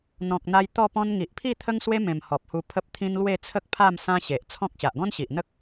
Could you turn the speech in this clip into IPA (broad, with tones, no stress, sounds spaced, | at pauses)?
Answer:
n̪ ɔ̃˨ k̚ n̪ a˧ j t̪ ɔ˥˧ p ɔ̃˦ n ŋ i˨ ʔ pʰ i˥˧ t̪ʰ ə˦ ŋ s w e˦ m ẽ˨˩ m h ɔ˨ p̚ h u˧ pʰ ə˦ p̚ t̪ʰ ĩ˦ n l w e˥˧ t͡sʰ ə˦ k̚ pʰ a˥˧ m s ã˦ ɕ e˨ ʔ t͡sʰ ɔ̃˦ k̚ ɕ a˨ ʔ ɡ ɔ̃˦ n ɕ i˨ ʔ n̪ ə˦ k̚